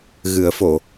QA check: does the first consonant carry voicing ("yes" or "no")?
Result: yes